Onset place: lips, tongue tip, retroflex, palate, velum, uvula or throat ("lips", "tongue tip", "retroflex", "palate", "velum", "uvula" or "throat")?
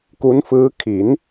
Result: velum